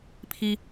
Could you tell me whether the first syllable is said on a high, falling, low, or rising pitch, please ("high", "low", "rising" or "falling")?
high